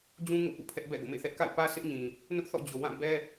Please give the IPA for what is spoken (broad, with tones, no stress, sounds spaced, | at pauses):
d͡ʑ ũ˦ ŋ o̰˦˨ p ṵ˦˨ pʰ ɛ˦ ʔ b ɛ̰˦˨ ɡ o̰˦˨ m ḛ˦˨ θ ɛ˦ ʔ k a̰˦˨ ɪ̯ p ä˦ s ɪ˦ ʔ ɲ ĩ˨ | n ʊ˦ ʔ θ ɔ̰˦˨ d͡ʑ o˨ w ã˦˨ b ɛ˦